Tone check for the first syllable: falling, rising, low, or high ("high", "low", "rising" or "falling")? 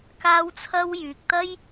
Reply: high